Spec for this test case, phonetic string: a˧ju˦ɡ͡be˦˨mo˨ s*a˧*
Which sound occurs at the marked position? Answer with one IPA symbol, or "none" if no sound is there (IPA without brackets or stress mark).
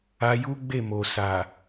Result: a˨